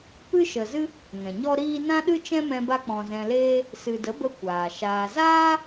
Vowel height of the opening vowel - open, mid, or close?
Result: close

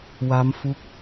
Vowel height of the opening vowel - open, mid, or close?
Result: open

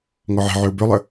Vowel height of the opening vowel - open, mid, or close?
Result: mid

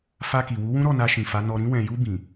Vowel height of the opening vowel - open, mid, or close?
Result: open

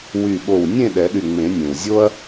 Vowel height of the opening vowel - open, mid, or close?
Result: close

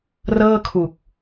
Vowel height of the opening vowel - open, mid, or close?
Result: mid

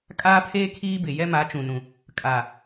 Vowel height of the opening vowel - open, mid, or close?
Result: open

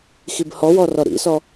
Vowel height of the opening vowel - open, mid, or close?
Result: close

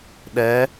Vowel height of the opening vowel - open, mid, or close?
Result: mid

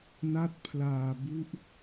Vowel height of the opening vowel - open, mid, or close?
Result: open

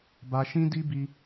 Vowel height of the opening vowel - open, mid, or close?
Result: open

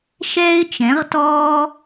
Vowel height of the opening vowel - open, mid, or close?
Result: mid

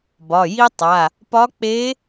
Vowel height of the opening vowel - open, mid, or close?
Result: open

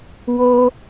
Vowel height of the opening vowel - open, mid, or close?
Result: mid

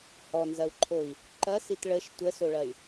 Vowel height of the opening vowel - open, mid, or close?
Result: mid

